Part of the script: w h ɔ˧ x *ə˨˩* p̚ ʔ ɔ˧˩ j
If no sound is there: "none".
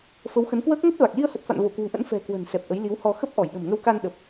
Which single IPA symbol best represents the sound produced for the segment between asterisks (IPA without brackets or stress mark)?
ə˦˥